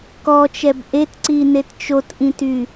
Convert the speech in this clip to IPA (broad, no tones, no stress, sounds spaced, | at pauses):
k ɔ t͡ʃ ɛ b ʔ e t ǀ i n e t t͡ʃ o t ʔ ĩ t y